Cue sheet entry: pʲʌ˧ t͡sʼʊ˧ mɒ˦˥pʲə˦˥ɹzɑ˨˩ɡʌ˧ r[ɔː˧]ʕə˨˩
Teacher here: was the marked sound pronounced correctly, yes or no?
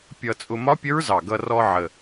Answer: no